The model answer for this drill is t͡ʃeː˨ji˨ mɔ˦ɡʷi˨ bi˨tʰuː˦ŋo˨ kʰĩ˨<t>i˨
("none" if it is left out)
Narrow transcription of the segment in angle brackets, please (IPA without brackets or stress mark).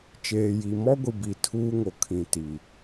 t